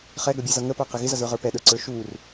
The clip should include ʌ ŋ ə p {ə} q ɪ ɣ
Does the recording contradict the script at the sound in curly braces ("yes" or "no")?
yes